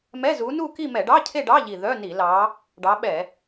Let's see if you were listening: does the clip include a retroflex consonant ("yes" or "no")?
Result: yes